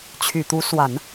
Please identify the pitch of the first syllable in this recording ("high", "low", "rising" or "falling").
low